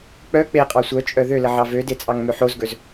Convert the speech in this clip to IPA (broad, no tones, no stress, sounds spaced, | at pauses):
k͡p œ k͡p e qʼ ɑ sʷ œ t͡ʃʼ œ ð ø l ə ʕ ɑ v ø d e t͡sʼ ɑ ŋ m ø ħ o z ɡ ɵ z